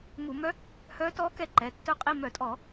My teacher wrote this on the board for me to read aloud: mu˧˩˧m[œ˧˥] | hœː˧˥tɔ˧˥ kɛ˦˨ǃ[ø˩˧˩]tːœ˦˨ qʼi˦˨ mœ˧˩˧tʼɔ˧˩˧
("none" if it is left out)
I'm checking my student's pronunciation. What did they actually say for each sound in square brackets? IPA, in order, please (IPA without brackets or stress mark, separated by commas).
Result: œ˧˥, ɛ˩˧˩